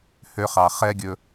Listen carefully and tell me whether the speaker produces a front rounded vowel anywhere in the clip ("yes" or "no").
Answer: yes